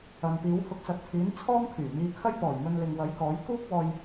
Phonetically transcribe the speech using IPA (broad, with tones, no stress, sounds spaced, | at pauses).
ɐ˨ n p iː˨˥ w h ʊ˧ k̚ s ɐ˨˥ t̚ pʰ iː˨˥ n t͡sʰ ɔː˥ ŋ kʰ yː˨˩ m iː˧ kʰ ɐ˥ j p ɔː˨˩ j m ɵ˧ n l ɪ˨ ŋ w ɐ˨˥ j k ɔː˨˥ j k uː˥ k̚ w ɔː˧ j